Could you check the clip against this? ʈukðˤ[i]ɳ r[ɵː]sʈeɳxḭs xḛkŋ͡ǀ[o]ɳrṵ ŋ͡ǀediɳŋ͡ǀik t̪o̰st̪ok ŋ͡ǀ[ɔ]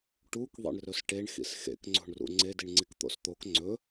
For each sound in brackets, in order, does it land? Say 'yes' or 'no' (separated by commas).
no, no, no, no